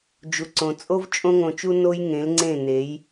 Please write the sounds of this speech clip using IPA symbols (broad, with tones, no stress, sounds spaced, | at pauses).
d͡ʒ u˨ ǀ õ˨ t͡sʼ o˦ v t͡ʃʼ õ˦ ŋ õ˧ t͡ʃ u˦ n o˦ j ŋ ẽ˨˦ l ŋ͡ǀ ẽ˦˨ n e˨˦ j